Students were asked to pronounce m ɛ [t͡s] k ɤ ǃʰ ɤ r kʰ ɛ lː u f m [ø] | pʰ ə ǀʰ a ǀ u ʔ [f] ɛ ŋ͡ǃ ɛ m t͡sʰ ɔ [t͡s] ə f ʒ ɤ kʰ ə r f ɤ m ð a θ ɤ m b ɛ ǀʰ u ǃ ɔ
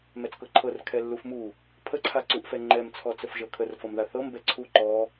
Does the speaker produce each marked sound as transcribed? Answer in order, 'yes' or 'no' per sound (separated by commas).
yes, no, yes, yes